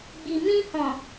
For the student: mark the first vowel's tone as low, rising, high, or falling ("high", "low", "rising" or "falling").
low